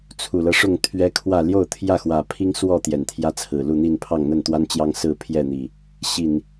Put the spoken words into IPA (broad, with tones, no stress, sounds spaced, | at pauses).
t͡sʰ u˨˩ l ɤ˦ ʂ ʊ˥˨ ŋ t̪ʰ ɥ ɛ˦ kʰ w ä˥˨ l j o˥˨ ʊ̯ t̪ʰ j ä˥˨ x w ä˨˩ pʰ i˦ ŋ s w ɔ˥˨ t̪ j ɛ˨˩ n t̪ʰ j ä˦ t͡sʰ ɹ̩˨˩ l u˥˨ n̪ i˥˨ n pʰ ɑ˥˨ ŋ n̪ ə˥˨ n t̪ w a˦ n t͡ɕ j ɑ˦ ŋ s ɹ̩˥˨ pʰ j ɛ˥˨ n̪ i˨˩ | ɕ i˨˩ n